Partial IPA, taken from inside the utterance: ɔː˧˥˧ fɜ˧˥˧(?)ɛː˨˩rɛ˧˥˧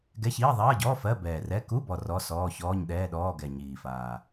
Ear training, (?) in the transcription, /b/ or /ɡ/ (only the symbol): b